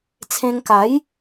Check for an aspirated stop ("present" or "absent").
present